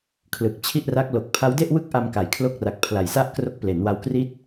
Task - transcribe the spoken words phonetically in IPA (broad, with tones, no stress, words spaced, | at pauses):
kʰlɯ˨˩k̚t͡ɕʰi˥˩ʔra˦˥k̚ lo˨˩k̚pʰa˦˥wde˥˩ʔwɯ˥˩k̚ ʔa˧mka˨˩jkʰlo˦˥k̚ra˨˩k̚ pʰla˨˩jsa˥˩ʔkro˦˥k̚ ple˩˦nwa˧wkri˥˩t̚